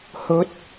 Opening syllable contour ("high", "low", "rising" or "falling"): rising